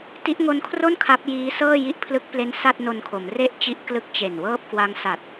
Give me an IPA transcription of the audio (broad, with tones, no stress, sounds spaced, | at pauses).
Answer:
t i˦˥ ʔ ŋ o˦˥ n kʰ r o˥˩ n kʰ a˦˥ p̚ j iː˦˥ s ɤː˥˩ j i˦˥ ʔ pʰ l ɯ˦˥ k̚ p l e˦˥ n s a˥˩ t̚ n o˧ n kʰ o˩˦ m r e˥˩ ʔ t͡ɕ i˦˥ ʔ k l ɯ˦˥ k̚ t͡ɕ e˨˩ n w ɤː˥˩ p̚ k w a˦˥ ŋ s a˨˩ t̚